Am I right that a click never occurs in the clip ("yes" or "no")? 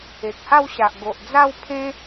yes